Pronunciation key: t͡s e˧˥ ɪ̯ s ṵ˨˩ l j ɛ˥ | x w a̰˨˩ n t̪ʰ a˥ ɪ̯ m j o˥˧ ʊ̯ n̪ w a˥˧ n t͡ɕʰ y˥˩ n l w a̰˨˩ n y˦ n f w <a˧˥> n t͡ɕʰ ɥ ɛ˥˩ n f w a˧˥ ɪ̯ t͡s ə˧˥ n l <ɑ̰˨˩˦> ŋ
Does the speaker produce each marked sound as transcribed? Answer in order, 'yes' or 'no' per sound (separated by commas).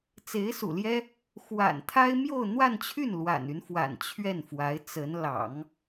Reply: no, yes